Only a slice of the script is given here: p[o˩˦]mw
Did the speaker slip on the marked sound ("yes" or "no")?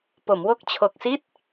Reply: no